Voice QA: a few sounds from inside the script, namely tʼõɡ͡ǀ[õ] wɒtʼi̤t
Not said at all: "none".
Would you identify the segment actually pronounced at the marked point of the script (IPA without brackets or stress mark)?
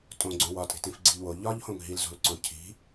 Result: õ